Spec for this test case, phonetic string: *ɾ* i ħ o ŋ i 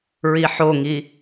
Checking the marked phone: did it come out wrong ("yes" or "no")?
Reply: yes